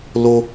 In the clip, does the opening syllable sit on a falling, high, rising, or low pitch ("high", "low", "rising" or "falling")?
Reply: high